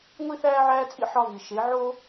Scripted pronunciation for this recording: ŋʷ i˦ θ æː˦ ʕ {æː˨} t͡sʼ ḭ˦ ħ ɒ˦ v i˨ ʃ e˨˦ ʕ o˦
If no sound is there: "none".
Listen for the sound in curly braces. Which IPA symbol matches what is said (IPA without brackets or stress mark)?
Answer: æː˦